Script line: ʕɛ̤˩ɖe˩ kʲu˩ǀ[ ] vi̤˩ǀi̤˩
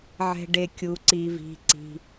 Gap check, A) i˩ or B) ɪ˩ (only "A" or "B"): A